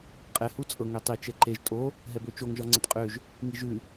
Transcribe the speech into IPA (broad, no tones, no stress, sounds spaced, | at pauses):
qʼ ɛ h u t͡sʼ ɤ ŋ ø tˤ i t͡ʃ ɛ ǃ e ʒ tʼ o | ɦ ɛ b ø t͡ʃ o ŋ ʒ ɒ ŋ͡ǀ ɛ t qʼ ø ʒ | ŋ i ʒ ʉ